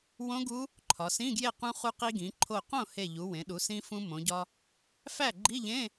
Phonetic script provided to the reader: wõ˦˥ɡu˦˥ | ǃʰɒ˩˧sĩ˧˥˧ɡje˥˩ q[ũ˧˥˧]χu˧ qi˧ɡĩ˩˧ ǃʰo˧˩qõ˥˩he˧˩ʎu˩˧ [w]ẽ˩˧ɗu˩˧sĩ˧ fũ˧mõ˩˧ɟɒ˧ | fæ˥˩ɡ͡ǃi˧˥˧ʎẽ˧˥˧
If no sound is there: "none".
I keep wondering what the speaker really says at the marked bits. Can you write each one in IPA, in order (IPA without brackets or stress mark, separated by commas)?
ũ˧, w